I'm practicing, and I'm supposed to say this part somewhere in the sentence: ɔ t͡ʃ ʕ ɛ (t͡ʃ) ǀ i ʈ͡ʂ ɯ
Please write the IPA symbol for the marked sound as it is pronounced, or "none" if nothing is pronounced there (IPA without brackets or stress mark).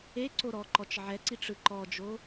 none